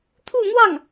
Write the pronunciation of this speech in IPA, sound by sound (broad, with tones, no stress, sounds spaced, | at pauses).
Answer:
t̪ʰ u˥˧ n̪ w ɑ˥˩ ŋ